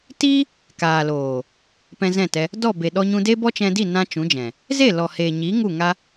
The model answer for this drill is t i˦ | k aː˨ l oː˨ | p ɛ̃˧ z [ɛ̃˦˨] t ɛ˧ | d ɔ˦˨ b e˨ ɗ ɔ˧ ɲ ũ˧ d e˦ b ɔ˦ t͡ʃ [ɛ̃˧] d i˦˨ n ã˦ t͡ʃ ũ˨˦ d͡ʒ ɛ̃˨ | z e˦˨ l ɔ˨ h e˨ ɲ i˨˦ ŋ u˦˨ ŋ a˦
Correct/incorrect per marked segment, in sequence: correct, correct

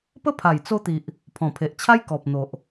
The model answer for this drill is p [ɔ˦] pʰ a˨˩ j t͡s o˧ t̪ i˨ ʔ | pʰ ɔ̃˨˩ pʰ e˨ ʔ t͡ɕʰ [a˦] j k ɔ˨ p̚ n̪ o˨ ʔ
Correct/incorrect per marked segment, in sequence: incorrect, correct

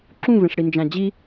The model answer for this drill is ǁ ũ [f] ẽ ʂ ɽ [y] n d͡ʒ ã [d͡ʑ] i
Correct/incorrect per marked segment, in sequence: incorrect, incorrect, correct

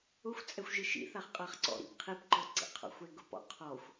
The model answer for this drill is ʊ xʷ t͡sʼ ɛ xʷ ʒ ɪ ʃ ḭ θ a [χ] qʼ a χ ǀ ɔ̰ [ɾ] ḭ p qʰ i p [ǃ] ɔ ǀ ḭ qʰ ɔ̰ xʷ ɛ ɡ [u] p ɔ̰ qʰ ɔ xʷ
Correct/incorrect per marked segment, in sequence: correct, correct, correct, incorrect

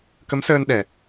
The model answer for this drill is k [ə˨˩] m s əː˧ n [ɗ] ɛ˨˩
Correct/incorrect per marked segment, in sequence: incorrect, correct

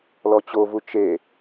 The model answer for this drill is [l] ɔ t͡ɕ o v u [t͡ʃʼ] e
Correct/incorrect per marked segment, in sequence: correct, incorrect

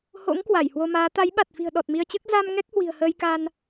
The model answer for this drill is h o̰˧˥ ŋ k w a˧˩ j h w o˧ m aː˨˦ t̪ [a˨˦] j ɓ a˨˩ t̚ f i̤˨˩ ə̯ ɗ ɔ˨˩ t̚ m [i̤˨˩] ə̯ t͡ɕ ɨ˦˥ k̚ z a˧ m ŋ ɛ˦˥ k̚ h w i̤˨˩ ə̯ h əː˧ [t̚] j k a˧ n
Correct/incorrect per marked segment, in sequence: correct, incorrect, incorrect

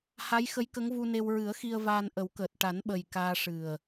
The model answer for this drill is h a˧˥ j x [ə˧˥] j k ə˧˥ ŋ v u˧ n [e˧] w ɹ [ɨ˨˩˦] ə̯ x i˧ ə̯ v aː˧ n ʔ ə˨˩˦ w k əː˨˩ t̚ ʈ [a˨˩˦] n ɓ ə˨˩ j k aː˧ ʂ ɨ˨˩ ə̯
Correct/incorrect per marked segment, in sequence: correct, correct, correct, correct

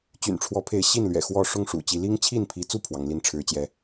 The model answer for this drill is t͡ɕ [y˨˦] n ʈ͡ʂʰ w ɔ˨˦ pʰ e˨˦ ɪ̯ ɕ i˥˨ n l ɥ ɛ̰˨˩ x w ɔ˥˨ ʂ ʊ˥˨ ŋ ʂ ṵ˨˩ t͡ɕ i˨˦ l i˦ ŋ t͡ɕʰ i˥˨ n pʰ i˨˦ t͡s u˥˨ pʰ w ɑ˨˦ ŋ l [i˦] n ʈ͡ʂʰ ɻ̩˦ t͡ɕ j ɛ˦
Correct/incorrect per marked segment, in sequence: incorrect, correct

